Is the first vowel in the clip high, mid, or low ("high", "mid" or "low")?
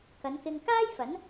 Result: low